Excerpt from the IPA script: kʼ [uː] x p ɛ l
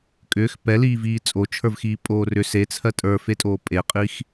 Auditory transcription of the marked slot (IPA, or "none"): ʏː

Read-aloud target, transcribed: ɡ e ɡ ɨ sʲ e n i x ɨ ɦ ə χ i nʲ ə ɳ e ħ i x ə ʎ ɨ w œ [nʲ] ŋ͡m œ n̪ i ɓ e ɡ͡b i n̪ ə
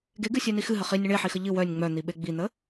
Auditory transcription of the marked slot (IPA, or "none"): nʲ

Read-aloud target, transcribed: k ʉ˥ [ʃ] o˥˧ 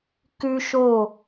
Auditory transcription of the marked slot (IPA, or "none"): ʃ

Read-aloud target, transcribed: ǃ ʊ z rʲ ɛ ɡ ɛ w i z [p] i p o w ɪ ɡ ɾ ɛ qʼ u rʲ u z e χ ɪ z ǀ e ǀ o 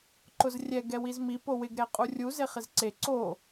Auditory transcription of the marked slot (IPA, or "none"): m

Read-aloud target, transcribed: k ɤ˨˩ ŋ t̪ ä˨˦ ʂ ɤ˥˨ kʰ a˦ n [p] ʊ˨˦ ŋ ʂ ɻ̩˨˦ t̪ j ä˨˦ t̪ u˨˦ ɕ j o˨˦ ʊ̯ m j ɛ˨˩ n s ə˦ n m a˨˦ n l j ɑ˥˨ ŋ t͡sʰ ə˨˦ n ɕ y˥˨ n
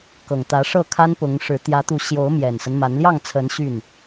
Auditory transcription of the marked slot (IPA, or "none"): p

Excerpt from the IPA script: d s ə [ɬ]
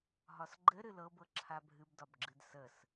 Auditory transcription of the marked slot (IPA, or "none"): s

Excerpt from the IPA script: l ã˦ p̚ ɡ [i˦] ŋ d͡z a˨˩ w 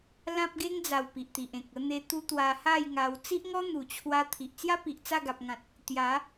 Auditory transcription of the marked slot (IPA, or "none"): e˦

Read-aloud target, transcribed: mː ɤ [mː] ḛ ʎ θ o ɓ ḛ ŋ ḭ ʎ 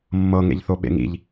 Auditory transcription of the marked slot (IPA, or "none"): ŋ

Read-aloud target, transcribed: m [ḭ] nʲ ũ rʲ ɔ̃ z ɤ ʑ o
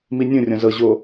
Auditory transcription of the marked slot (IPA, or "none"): i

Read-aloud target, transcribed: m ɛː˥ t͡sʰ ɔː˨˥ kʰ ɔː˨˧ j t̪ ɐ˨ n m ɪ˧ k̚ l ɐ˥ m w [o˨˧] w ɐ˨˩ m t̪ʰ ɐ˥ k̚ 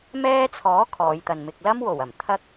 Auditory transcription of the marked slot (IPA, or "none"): o˨˩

